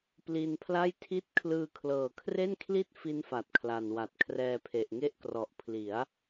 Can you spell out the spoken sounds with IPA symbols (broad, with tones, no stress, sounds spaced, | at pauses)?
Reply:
p l i˧ n pʰ l a˥˩ j tʰ i˥˩ t̚ kʰ l ɯː˧ kʰ l ɤː˨˩ kʰ r e˥˩ n kʰ l i˥˩ t̚ f i˦˥ n f a˨˩ t̚ kʰ l a˨˩ n w a˨˩ t̚ kʰ r ɛː˧ pʰ e˨˩ ʔ ŋ e˦˥ ʔ k r ɔ˨˩ ʔ pʰ l i˩˦ a̯